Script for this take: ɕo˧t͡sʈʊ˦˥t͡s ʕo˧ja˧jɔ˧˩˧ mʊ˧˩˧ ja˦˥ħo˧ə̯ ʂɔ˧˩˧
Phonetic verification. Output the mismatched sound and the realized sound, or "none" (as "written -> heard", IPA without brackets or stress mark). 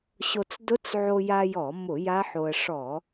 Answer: ʈ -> d